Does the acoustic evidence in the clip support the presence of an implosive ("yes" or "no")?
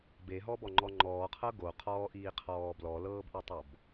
no